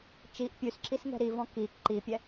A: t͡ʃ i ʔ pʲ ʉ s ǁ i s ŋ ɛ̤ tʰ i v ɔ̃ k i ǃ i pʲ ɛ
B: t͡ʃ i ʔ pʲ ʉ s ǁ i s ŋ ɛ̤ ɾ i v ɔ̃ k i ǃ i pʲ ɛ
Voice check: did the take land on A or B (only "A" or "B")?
B